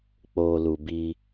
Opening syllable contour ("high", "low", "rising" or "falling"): low